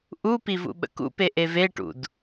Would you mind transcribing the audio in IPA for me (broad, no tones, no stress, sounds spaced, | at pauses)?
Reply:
ʔ u p i v ṵ ɓ ə̰ k ṵ p e ʔ e v e ʈ ṵ d